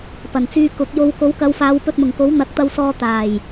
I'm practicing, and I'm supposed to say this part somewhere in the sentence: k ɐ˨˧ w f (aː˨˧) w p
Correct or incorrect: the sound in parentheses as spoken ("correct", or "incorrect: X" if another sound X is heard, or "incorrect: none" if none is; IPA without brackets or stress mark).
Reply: correct